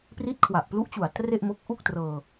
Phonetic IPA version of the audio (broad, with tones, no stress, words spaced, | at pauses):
pri˦˥t̚kʰwa˨˩ʔplu˦˥ʔt͡ɕu˨˩a̯ tre˥˩ʔmo˦˥k̚ ʔu˥˩k̚trɤː˧